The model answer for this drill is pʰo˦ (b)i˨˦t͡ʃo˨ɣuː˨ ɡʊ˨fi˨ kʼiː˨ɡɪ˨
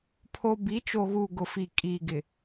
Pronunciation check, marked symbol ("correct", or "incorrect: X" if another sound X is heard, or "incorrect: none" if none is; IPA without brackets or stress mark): correct